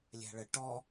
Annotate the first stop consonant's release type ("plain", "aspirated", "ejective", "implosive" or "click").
plain